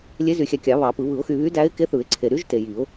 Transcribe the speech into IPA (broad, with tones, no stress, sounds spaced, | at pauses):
lʲ e˧˥ z y˨˩˦ xʲ æ˨ kʲ ɑ˨˩˦ β ɑ˨˩˦ p ɯ˨˩˦ β ɯ˨˩˦ ʊ̯ x y˨ β y˧˥ d æ˧˥ ɪ̯ k e˧˥ θ ɯ˨˩˦ ɪ̯ ǀʰ e˨ ɾ y˧˥ ʒ t e˨ j i˨˩˦ ʊ̯